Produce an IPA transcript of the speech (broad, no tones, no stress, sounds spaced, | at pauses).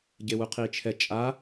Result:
ɟ e w u qʰ i t͡ʃʰ ɛ t͡ʃʼ a